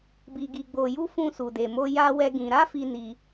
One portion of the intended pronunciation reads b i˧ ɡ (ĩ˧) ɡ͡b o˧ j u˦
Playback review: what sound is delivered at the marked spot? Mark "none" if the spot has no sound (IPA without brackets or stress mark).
i˧